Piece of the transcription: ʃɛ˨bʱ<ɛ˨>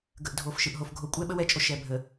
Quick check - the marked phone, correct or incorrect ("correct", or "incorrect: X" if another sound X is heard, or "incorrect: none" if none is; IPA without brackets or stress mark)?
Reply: incorrect: ə˨